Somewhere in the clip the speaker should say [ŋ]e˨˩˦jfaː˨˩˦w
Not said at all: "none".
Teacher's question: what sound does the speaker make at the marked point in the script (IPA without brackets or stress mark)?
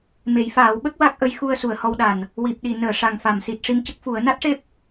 m